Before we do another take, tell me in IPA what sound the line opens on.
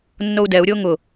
nː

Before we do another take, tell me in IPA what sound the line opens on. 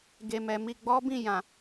ɡ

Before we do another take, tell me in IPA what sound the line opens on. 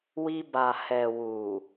w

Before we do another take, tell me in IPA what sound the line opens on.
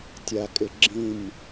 tʲ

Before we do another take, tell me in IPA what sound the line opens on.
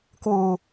k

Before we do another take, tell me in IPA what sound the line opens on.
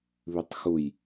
β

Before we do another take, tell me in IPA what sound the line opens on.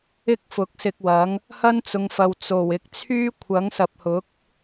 ɪ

